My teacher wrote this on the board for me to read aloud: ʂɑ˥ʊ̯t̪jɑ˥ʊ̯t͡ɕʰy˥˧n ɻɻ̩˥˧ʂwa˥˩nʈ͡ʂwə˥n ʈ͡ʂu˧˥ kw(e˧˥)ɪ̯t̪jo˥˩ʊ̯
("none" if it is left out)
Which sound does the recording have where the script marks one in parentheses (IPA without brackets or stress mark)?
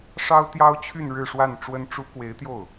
e˧˥